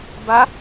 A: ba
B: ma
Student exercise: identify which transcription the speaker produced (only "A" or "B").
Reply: A